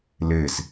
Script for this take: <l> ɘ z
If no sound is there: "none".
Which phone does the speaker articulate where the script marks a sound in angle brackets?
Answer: l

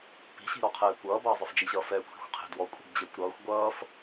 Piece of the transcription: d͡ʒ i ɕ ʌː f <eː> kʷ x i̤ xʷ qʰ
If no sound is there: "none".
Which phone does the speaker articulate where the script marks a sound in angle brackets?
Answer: ɛː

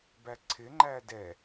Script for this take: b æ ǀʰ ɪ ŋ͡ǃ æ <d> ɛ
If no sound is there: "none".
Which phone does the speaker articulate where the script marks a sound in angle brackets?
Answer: d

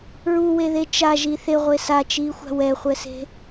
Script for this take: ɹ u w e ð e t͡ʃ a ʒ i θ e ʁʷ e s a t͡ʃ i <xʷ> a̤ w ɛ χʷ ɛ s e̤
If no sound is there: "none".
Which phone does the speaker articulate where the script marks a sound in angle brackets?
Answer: xʷ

